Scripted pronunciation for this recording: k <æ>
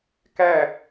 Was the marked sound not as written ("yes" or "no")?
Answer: no